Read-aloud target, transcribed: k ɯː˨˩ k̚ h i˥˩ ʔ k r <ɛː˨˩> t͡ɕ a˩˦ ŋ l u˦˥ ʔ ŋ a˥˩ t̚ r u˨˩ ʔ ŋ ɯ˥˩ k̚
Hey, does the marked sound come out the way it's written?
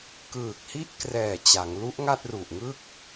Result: yes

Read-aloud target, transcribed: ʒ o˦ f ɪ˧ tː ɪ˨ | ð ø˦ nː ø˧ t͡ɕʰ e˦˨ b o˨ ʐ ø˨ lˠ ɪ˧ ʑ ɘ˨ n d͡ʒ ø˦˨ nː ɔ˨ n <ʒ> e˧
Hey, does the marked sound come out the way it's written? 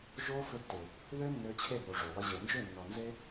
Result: no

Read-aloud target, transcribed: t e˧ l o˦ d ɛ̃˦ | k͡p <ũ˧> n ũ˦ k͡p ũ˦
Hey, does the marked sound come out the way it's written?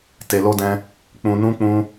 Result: yes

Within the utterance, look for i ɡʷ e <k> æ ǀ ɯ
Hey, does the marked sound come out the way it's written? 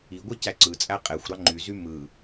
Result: no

